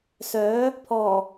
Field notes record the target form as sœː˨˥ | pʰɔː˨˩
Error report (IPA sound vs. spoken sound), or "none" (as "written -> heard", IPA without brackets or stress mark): none